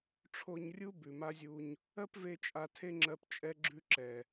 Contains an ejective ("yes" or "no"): yes